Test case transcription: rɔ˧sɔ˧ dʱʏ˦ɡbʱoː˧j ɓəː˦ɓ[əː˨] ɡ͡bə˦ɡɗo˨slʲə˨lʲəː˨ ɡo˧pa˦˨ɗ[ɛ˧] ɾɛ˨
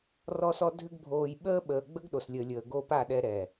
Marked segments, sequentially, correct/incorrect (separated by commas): correct, correct